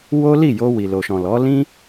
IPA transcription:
w o˦ l i˦˨ j o˧ w i˨ l o˨ ʃ ɔ̃˨ l ɔ˨˦ l ĩ˦

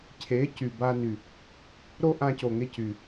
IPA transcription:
cʰ e˨˦ c y˨ b a˧ n y˨ | ɾ o˦ ʔ ã˧ c o˨ ŋ e˧ c y˨

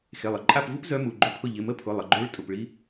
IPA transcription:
x e˩˧˩ lˠ ə˩˧˩ ǃʼ a˦˨ p v u˦˥ p z œ˦˥ m u˩˧˩ ɡ͡ǃ ʏ˦˥ pʰ ʊ˦˨ ʎ ɪ˩˧˩ m ə˦˥ pʰ ʊ˩˧˩ lˠ ə˩˧˩ ɡ͡ǃ ø˦˥ ɭ tʼ ʊ˩˧˩ p ɭ i˦˥

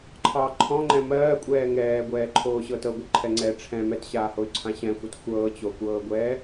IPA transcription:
ǃʰ ɑ ǃʰ ɔ̃ ŋ͡ǃ ɛ̃ m ɜː kʷʼ ɛː ŋ ɛː ɡʷ ɛː ǃʰ oː ɕ ɤ t ɤ ɡʷ ɤ ǃʰ ɛ ŋ͡ǀ ɛ ʈ͡ʂʰ ɛ̃ m ɛ t ɕ aː h o y̯ ǀʰ ã ɕ ɛ̃ xʷ a t xʷ ɤː t͡ɕ o kʷ ɤː ɡʷ ɛː

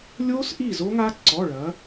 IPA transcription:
lʲ o˦˥ s ʔ i˥˩ z o˦˥ ŋ a˦˥ ǀ ɔ˩˧˩ ɭ ɐ˩˧

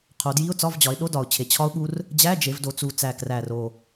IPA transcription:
qʰ o˩˧ d j i˧˥˧ ʊ̯ t͡s ɒ˧˥˧ v d͡ʑ ɒ˩˧ ɪ̯ ɗ o˧˥˧ d ɒ˨˩ ʊ̯ t͡ɕʰ e˨˩ t͡ɕʰ ɒ˦˥ ʊ̯ ɠ u˦˥ r | d͡ʑ æ˧˥˧ d͡ʒ e˩˧ v d o˩˧ t͡s u˨˩ t͡s æ˨˩ k r æ˨˩ r o˨˩

